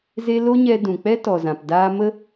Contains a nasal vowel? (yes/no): yes